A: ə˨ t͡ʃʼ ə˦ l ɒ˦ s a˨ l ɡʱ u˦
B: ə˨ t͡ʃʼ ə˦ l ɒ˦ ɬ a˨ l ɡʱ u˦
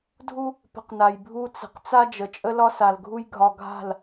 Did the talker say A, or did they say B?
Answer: A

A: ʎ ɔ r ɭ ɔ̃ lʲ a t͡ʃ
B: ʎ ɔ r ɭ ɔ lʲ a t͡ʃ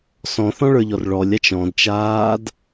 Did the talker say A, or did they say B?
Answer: B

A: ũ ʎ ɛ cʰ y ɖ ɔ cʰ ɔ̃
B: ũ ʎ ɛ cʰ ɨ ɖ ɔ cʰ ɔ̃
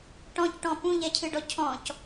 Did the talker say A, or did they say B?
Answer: B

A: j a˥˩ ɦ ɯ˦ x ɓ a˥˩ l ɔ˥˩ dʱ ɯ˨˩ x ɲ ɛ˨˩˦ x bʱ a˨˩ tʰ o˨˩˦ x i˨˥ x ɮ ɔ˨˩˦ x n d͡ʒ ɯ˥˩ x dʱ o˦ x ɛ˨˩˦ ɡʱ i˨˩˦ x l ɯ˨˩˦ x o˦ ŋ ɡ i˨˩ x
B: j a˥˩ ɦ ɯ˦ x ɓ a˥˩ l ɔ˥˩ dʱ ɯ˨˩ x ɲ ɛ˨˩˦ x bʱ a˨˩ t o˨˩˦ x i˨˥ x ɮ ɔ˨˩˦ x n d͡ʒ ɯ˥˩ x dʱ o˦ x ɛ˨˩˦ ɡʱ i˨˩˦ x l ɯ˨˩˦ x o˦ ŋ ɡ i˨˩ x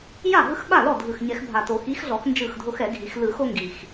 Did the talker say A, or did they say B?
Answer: B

